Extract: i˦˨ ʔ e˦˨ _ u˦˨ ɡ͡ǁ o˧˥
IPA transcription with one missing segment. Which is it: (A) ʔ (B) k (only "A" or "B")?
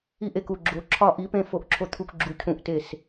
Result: B